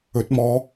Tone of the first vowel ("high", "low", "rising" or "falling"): rising